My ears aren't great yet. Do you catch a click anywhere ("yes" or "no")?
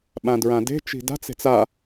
no